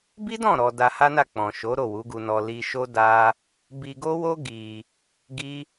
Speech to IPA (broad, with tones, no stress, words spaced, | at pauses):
bi˦dɔ̃˦˨ ɾɔ˧ da˧ha˦na˦˨ k͡pɔ̃˨ʃo˨˦ ɾo˦˨wu˨˦ɡu˧nɔ˧ li˧ʃo˦ da˦ | bi˧ɡo˦wo˦ ɡi˧ | ɡi˦